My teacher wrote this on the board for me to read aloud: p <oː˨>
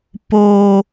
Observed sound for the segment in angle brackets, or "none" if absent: oː˨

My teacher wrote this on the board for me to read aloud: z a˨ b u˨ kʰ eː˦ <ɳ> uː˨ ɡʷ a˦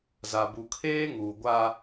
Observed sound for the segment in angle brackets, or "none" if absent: ŋ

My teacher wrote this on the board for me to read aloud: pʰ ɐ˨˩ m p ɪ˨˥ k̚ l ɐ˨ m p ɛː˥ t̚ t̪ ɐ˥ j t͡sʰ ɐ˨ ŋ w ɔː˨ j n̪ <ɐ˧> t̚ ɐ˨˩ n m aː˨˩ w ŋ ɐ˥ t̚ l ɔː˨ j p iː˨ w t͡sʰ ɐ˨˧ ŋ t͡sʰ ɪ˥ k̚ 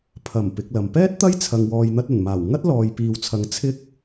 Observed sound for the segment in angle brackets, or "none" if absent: ɐ˧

